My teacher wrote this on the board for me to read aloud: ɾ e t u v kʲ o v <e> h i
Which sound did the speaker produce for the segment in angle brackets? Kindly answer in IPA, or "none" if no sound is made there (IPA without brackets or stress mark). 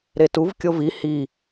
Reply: i